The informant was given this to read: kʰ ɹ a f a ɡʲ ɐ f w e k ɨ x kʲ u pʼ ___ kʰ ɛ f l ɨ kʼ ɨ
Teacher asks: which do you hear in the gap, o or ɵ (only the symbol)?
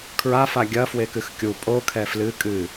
o